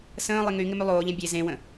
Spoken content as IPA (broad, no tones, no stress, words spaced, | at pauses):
sə̃ːlˠɪ ŋy ŋɪmylˠoːʎɛ̃ bʲe zẽwə̃